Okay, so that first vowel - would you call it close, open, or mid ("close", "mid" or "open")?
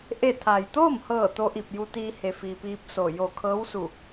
mid